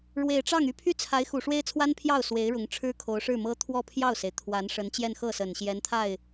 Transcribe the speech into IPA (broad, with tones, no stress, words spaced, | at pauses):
ɻwe˨˩ɪ̯ʈ͡ʂɑ˥˩ŋy˥ pʰy˥t͡sʰa˧˥ɪ̯ xu˨˩ʂwe˥ɪ̯t͡sʰwa˥n pʰjɑ˥˩ʊ̯ swe˧˥ɪ̯ɻʊ˧˥ŋʈ͡ʂʰɻ̩˥ kʰo˧˥ʊ̯ʂɻ̩˥˩mɤ˥ t̪ʰwɔ˥˧ pʰjɑ˥˩ʊ̯se˩ɪ̯ t̪ʰwa˧˥nʂə˧˥n t͡ɕjɛ˥˧nxɤ˥˩sə˨˩n ɕjɛ˧˥nt̪ʰa˥˩ɪ̯